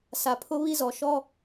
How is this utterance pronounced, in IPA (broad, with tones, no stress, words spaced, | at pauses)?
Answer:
sa˨pʰʊ˦βi˦zɔ˨ ʃɔ˦